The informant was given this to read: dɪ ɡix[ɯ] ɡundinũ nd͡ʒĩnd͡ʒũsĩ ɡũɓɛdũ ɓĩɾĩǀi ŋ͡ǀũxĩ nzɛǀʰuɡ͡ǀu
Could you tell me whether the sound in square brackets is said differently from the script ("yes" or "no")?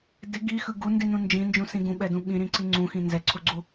no